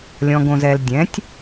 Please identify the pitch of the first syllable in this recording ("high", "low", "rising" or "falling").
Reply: low